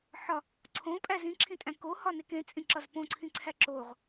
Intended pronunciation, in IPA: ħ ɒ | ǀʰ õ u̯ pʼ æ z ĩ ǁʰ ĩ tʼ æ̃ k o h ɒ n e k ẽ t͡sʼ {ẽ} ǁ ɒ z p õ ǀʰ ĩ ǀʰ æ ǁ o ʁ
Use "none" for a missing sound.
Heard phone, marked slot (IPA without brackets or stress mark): ĩ